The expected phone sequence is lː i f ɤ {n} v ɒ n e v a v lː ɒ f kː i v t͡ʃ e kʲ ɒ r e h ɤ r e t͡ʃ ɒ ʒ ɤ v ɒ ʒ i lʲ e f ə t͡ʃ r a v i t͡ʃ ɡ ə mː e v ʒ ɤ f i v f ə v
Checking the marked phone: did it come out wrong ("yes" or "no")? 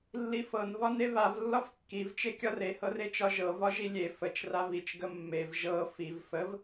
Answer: no